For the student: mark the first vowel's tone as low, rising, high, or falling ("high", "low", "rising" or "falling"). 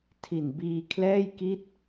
low